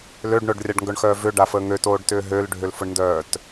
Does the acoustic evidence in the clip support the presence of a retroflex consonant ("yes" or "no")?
yes